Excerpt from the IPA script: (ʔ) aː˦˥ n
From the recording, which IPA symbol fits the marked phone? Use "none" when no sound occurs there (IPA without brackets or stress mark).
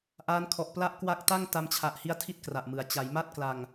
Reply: ʔ